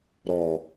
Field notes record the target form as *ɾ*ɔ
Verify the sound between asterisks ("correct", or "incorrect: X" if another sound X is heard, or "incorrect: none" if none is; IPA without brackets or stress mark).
correct